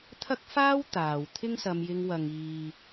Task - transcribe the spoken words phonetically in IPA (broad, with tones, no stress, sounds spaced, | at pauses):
t̪ʰ ɐ˥ k̚ f aː˥ w t̪ aː˨ w t̪ʰ ɪ˥ ŋ s ɐ˧ m j ɪ˧ ŋ w ɐ˨ ŋ iː˨